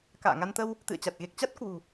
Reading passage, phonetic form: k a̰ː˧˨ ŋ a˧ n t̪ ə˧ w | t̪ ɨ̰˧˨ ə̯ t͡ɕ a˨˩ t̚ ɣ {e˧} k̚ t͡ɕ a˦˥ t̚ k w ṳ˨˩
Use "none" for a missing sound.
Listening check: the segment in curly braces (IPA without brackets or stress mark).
e˨˩